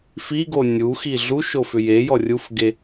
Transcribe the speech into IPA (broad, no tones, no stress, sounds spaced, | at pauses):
f i ɡ o nʲ u x i ɮ u ʃ o f ʏ j e j ɔ rʲ u f ɡ e